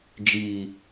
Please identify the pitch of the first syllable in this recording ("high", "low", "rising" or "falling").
low